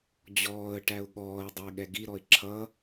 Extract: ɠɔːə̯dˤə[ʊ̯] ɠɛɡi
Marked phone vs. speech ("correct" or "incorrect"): incorrect